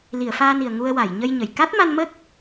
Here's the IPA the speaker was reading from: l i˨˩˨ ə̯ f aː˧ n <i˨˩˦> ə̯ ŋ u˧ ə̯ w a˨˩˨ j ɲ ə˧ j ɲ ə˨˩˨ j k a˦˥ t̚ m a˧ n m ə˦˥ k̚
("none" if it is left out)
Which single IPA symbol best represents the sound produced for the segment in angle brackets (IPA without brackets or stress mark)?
i˨˩